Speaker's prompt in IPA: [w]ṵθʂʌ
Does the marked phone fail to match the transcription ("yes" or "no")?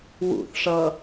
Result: no